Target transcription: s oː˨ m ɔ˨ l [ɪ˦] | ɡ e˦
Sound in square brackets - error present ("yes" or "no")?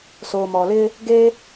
no